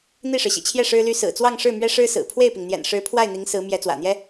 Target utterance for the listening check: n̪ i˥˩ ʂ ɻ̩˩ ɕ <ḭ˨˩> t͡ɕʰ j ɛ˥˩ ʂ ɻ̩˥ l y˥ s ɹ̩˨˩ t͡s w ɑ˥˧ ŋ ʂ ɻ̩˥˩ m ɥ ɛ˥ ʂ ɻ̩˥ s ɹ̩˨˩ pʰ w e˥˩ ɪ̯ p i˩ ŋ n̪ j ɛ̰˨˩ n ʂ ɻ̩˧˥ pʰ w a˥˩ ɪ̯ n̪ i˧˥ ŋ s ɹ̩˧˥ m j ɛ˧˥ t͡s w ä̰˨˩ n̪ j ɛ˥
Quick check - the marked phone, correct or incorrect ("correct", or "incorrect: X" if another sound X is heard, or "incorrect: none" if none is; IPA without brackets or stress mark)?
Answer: correct